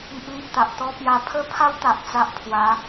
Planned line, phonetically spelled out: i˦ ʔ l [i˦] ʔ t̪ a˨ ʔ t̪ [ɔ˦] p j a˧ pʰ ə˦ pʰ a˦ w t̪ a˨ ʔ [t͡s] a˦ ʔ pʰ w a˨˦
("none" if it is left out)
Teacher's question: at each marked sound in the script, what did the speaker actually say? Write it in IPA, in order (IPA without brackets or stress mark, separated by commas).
i˦, ɔ˦, t͡s